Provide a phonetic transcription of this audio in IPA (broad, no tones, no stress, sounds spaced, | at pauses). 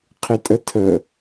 qʰ ɪ tʼ ə tʰ ə